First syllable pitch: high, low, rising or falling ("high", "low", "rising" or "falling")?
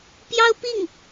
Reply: high